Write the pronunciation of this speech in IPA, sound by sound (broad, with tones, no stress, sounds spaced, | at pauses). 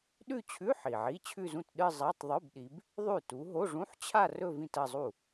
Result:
ɗ ʉ˥˧ t͡ɕʰ ʉ˧˥˧ ħ i˨˩ ʕ i˧˥˧ t͡ɕʰ ʉ˥˧ z ũ˥˩ t ɗ ɨ˥˧ zˤ a˧˥˧ tˤ ðˤ u˧˥˧ b ɗ i˨˦ b | ðˤ ʉ˥˩ t u˨˦ ɦ o˧˥˧ ʐ ũ˧˥˧ ħ t͡ɕʰ a˥˧ r ɵ˥˧ v ĩ˥˧ t ɐ˥˧ zˤ u˥˩